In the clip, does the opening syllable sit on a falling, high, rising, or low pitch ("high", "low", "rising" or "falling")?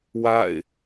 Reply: falling